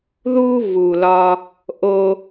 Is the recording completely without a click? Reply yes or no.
yes